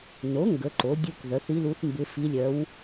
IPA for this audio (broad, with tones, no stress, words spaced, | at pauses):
no˩˥ ŋɡə˩˥ǃo˩˥ dʲu˧˥k ðœ˩˥θi˧˥lu˧˥θ mbɪ˧˥ fi˧˥lʲœ˧˥w